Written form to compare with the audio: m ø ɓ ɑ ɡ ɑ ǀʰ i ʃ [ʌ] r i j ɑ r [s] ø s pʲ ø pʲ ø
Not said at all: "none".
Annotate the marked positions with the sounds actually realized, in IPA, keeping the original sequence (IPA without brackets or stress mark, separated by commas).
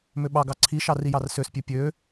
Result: ɑ, s